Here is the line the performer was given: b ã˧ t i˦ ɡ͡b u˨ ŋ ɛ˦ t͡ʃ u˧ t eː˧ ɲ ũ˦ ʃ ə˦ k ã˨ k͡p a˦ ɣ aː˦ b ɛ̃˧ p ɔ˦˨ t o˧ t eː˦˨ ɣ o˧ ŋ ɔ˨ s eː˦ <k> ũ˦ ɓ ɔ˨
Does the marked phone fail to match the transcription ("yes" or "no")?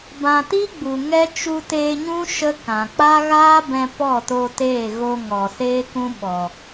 no